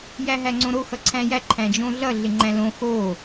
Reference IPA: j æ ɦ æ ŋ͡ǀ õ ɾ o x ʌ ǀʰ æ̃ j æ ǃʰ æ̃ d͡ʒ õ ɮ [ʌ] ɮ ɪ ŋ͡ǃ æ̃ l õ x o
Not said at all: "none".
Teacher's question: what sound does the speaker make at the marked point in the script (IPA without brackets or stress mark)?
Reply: ʌ